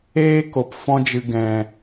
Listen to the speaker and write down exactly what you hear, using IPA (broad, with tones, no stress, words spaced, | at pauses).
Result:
eː˦ko˨p fɔ̃˧d͡ʒɨ˨ ɡɛ̃˨